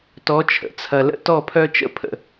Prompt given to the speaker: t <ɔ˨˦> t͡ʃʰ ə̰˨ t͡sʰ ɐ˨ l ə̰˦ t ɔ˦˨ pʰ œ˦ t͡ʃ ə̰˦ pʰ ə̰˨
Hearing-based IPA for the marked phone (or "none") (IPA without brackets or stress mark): ɔ˨˦